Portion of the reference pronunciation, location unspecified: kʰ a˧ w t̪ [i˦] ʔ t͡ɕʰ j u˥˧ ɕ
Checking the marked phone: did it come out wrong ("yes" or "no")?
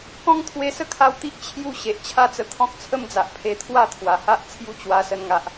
no